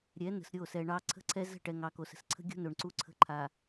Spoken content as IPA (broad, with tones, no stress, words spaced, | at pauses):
ɾʲɛ˨˦ nə̤˨sɾʲo˦˨sɛ˨ɳɑ˦ ǀʰə̤˦ǀʰɛ˦ zə̤˦˨ʈɛ˨ ŋɑ˨ko˨sə̤˨s ǀʰə̤˦ɡʲo̤˦ no˨ɳ ǀu˦ǀʰə̤˦ ǃʰa˨